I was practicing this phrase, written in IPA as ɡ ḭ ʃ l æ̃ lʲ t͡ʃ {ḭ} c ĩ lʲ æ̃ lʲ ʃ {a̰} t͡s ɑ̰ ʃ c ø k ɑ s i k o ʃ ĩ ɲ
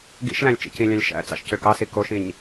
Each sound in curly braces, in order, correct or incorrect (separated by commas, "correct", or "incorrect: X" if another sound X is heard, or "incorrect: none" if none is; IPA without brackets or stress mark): correct, incorrect: æ̰